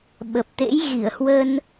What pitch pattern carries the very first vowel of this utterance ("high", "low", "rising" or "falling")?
low